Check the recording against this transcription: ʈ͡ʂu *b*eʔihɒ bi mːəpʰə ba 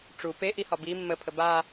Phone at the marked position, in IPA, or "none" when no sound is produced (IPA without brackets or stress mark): p